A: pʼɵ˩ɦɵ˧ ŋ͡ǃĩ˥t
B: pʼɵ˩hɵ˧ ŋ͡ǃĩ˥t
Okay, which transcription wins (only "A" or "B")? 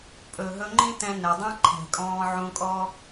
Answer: A